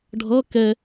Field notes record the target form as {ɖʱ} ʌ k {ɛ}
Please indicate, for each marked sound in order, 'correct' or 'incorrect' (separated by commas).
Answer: correct, correct